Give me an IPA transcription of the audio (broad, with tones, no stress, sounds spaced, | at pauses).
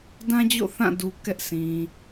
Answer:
d ã˦ d͡ʑ o̰˦˨ θ ã˦˨ d u˨ k ɛ˦ ʔ s ĩ˨